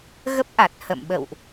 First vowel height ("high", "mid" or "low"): mid